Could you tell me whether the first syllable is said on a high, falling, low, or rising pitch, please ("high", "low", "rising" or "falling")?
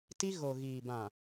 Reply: high